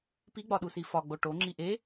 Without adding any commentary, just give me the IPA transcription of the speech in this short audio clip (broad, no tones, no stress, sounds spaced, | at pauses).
p i ɡ͡b ɒ ɗ u s i f ɒ ɡ͡b o ʈ o ŋ͡ǁ i ʔ e